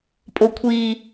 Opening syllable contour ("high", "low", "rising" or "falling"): low